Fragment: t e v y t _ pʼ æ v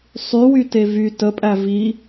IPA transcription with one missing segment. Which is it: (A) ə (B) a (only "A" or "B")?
A